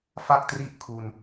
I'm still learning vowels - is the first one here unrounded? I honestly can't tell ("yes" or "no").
yes